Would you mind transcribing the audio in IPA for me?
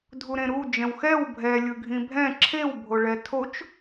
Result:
dʱuɾẽɾu d͡ʒɛ̃wxɛw bʱɛ lʲɯɡʱĩbʱɛ̃ ǁʰew bʱoɭɛtʰot͡ʃ

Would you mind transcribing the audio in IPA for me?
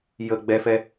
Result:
jə ɡ͡bɛfɛ

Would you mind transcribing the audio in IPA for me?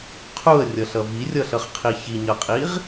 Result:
qʰuə̯rʲʌɬʌ virʲʌɬʌχqʰi çiɲʌqʼiʁ

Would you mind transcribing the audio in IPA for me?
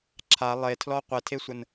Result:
ǁʰa lˠetʰlɔ qʷɛtʰesʷən

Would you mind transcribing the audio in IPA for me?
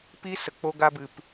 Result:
pi˦sə˨ k͡po˧ɡa˧bɨ˨p

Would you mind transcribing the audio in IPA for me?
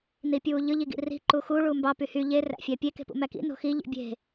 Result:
nipʲuːʎɯ ʎiɡḭri̤ ǃuxu ɭumbɑ pyhy ʎe ræ̰fʲæpʲe ke̤pṵmækḭ no̤xi ʎḭbʲe̤

